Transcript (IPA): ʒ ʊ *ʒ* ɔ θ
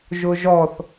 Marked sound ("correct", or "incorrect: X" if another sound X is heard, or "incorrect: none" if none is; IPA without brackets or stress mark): correct